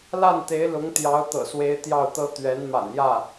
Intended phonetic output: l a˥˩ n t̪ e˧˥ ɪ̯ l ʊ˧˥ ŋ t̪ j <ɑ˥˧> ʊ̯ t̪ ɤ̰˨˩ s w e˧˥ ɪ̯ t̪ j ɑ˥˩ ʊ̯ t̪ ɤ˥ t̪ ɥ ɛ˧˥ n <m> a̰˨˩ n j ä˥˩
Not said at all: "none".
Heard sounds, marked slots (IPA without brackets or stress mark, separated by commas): ɑ˧˥, m